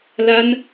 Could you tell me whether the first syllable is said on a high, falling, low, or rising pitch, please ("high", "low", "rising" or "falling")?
high